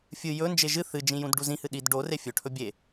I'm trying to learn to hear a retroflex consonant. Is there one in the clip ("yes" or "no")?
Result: yes